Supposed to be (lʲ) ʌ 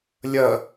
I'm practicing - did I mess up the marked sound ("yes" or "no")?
no